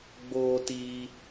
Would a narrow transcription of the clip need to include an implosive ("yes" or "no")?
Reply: no